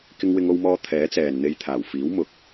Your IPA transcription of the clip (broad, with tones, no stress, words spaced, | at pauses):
kɪ˧ŋwɪ˧ŋo˧wmɔː˧ t̪ʰɛː˨˥t͡sɛː˨n n̪e˧jt̪ʰaː˨˩wfiː˨˥w mʊ˨k̚